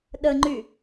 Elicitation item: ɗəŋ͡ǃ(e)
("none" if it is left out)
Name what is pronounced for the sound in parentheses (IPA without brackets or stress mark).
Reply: y